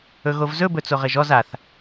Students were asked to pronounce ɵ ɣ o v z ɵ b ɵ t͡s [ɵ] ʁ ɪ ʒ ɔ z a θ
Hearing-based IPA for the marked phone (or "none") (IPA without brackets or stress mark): o